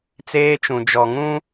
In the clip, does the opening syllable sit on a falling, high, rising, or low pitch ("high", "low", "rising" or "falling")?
high